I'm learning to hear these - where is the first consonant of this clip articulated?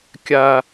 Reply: velum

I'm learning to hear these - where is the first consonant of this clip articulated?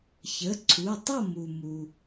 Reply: palate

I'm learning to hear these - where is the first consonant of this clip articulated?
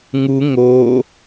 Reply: velum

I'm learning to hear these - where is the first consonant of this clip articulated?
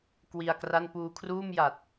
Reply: velum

